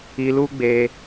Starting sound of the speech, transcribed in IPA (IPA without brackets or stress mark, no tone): i